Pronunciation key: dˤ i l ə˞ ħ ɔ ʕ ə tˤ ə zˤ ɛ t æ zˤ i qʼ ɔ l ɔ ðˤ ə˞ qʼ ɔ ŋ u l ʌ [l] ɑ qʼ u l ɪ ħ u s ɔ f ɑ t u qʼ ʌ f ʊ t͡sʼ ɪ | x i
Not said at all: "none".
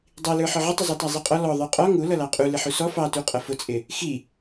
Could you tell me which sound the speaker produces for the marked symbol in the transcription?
l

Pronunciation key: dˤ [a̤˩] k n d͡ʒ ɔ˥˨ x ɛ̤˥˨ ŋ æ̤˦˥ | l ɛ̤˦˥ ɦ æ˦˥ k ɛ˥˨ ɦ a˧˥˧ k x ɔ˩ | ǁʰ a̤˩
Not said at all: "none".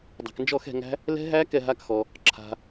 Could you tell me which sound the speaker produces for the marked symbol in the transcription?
a̤˩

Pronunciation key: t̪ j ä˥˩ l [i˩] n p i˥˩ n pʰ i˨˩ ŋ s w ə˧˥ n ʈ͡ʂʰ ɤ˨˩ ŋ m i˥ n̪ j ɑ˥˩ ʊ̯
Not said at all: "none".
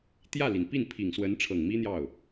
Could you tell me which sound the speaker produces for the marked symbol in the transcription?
i˩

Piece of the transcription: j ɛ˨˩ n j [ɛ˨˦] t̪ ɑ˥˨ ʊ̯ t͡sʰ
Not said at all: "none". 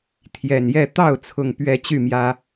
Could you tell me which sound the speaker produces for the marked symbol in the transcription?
ɛ˥˨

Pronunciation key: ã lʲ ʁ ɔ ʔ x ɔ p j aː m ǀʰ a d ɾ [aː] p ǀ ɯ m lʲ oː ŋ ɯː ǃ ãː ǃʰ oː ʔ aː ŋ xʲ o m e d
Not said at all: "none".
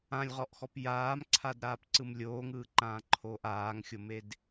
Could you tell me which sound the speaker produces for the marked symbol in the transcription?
aː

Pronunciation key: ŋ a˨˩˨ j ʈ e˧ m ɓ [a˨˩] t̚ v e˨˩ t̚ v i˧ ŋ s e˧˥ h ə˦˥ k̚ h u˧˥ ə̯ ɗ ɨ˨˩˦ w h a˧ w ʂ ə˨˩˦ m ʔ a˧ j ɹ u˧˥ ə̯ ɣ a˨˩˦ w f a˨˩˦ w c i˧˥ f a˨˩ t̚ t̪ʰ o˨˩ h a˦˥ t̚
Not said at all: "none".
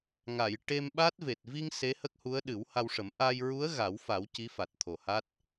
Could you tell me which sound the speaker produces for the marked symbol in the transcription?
a˦˥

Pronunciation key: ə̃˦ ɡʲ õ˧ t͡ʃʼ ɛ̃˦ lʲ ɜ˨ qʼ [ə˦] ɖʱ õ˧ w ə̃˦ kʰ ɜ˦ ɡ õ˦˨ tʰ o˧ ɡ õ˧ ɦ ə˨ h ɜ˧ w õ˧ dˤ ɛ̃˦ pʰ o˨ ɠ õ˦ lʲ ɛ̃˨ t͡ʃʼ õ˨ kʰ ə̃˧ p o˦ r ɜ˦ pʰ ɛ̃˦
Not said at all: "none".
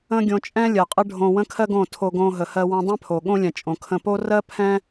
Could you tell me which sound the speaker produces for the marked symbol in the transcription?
ə˦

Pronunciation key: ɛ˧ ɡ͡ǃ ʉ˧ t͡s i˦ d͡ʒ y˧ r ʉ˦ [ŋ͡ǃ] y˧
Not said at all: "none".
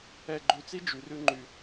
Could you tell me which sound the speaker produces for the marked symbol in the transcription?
ŋ͡ǃ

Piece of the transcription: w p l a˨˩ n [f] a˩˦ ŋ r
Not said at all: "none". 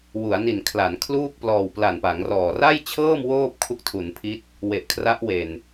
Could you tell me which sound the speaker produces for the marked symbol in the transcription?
p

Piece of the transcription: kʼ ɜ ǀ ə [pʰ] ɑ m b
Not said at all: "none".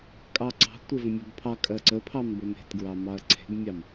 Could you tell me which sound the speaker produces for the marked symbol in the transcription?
pʰ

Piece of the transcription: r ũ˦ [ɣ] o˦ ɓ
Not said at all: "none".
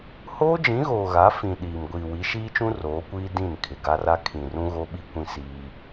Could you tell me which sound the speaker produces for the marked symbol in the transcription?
ɣ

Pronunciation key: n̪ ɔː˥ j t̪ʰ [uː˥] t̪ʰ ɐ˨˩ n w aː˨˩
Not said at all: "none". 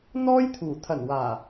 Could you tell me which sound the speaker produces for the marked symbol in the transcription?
uː˨˩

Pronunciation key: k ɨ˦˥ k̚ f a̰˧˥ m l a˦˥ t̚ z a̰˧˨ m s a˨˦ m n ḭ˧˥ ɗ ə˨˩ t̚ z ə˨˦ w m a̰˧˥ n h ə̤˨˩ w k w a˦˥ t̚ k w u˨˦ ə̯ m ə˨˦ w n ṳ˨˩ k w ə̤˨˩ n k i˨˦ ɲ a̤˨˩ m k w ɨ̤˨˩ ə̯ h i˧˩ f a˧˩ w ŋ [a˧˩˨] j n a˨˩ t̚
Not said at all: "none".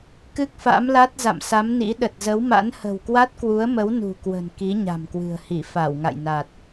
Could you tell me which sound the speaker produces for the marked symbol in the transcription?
a̰˧˨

